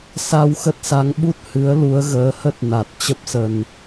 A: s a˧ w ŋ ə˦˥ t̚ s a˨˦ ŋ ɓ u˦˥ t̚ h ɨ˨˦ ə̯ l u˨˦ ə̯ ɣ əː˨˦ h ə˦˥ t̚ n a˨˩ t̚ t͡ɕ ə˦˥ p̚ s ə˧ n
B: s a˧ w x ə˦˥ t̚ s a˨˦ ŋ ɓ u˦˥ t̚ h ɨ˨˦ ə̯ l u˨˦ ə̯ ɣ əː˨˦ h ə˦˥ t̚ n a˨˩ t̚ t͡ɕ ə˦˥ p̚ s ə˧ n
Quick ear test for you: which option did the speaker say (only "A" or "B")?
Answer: B